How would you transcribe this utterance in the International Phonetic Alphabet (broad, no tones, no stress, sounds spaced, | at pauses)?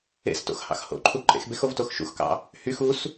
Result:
ḛ s t o̰ x h ɑ̰ x h o̰ ǃʰ u ǃʼ ḛ x b e x o v t o x ʃ ṵ x k ɑ̰ | h y x u s